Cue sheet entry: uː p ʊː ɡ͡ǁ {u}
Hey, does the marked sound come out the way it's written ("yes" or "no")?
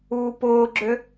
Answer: no